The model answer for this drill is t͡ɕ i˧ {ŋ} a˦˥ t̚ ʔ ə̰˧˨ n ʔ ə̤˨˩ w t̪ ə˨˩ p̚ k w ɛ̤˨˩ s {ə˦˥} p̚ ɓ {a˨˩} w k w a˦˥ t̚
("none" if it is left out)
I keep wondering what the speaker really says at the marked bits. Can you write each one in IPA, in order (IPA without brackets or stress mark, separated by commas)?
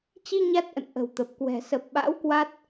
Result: ɲ, ə˨˩, a̰˧˥